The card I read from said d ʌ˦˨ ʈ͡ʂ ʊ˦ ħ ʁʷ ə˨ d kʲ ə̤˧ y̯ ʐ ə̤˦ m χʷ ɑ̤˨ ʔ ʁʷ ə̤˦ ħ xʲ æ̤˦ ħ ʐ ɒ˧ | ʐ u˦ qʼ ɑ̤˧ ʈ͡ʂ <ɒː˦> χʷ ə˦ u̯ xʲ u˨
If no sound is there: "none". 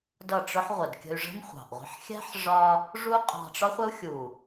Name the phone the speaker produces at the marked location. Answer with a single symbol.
ɒ˦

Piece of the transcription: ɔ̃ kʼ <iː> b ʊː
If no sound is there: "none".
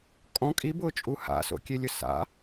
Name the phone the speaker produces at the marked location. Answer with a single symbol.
i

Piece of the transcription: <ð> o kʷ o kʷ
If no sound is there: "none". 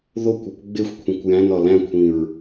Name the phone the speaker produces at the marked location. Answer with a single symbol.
ð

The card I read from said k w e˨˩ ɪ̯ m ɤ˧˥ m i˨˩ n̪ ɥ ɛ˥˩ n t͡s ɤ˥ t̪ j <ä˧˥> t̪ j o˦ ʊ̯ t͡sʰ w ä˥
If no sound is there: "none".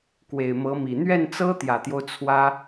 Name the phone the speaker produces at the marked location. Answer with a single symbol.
ä˨˩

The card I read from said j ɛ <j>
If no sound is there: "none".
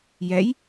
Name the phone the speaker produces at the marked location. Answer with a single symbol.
j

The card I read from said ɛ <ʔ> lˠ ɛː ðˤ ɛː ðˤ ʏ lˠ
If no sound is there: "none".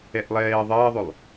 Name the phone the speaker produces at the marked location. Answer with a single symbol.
ʔ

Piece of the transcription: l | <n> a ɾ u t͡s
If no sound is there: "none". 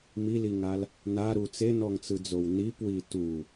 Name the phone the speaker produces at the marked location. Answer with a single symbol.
n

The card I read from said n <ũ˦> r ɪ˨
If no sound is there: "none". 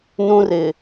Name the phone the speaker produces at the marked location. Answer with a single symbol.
ũ˦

